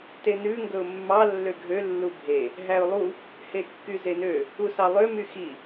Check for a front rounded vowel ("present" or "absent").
present